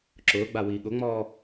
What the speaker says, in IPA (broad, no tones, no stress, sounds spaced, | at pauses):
ǁ ʊː ɡ͡b a w iː ɠ ʊ ŋ͡m ɔː